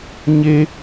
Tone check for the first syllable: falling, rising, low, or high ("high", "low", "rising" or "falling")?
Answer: high